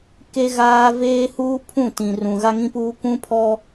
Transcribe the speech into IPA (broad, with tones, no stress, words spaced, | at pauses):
ke˦ɣaː˦ veː˦huː˦pʰũ˦˨tĩ˨ rũ˨ ɣa˦ŋĩ˦puː˦ kʷũ˦pʰɔ˦